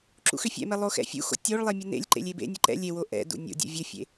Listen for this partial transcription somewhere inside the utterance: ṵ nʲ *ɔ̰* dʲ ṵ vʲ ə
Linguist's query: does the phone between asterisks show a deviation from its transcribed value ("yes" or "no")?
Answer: yes